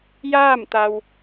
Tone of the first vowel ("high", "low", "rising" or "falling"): falling